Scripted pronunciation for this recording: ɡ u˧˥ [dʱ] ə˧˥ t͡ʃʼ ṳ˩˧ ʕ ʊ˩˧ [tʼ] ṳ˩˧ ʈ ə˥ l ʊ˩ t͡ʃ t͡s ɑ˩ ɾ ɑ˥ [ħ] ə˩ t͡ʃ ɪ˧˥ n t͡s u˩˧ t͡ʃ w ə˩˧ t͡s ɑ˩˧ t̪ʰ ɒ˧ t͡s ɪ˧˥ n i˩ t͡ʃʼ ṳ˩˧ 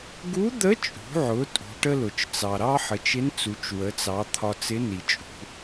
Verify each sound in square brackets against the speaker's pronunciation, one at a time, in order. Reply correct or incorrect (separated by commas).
incorrect, correct, correct